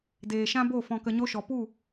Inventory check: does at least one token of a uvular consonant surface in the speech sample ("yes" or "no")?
no